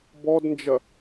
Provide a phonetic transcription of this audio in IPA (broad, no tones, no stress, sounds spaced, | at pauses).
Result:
b ɔ d n d͡ʒ ɐ